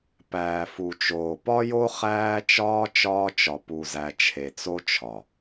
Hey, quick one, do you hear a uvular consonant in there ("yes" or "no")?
yes